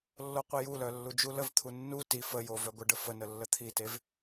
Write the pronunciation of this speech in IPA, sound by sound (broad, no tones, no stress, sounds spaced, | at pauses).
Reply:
lː o qʷ i j u l œ lː u d͡ʒ u l ə v t̪ʰ u nː u t i f ə j o v œ ɡʷ ə ɖ ə f ə n ə lː ə t̪ʰ i t e v